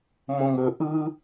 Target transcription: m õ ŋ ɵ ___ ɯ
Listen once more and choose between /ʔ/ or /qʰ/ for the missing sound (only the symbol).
ʔ